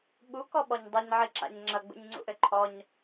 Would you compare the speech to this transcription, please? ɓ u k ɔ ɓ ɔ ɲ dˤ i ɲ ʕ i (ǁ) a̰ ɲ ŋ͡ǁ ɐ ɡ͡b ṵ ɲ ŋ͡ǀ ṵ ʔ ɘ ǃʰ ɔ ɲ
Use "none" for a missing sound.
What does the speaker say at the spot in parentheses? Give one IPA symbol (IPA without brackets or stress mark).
ǁ